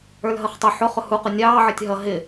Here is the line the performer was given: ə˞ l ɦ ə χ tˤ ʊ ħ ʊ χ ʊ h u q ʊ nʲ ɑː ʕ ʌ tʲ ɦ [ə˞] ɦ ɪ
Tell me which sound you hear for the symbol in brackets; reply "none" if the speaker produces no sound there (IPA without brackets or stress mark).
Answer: ʌ